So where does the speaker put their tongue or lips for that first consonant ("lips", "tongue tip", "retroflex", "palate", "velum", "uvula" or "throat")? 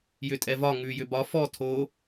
palate